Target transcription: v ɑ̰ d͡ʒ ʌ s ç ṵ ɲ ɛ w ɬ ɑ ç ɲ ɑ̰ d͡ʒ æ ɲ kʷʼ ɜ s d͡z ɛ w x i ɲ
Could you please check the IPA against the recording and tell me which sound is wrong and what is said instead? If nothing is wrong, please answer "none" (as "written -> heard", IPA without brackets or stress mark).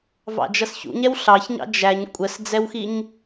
none